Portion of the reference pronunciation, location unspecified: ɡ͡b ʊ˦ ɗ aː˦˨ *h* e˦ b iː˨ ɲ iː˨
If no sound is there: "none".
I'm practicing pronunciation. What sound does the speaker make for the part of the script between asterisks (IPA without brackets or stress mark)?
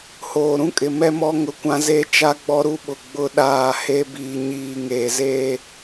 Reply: h